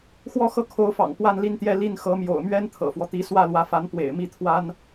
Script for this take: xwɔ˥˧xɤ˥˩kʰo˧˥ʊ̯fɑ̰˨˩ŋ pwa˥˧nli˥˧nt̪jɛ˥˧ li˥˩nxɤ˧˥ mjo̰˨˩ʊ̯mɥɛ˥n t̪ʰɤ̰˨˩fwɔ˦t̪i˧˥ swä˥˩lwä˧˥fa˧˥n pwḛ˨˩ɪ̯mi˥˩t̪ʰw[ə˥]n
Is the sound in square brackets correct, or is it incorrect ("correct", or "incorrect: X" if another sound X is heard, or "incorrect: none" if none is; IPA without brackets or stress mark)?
incorrect: a˥